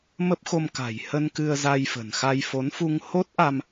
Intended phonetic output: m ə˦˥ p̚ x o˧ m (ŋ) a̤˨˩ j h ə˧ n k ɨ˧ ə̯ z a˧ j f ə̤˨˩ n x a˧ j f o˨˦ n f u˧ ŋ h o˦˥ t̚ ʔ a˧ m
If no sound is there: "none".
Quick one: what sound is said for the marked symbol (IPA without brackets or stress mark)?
k